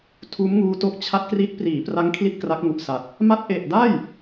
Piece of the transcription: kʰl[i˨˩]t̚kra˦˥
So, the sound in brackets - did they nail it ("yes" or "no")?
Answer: no